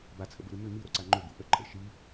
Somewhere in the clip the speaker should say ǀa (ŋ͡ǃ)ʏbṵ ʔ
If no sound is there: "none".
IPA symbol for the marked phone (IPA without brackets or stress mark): ŋ͡ǃ